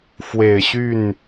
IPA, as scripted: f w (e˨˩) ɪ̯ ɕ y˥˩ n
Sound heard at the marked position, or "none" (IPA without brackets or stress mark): e˨˩